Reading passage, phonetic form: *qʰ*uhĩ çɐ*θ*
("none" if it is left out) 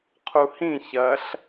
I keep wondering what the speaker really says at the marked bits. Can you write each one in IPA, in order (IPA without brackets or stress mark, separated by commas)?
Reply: qʰ, ɬ